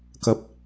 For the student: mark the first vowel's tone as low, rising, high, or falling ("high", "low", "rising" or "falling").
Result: low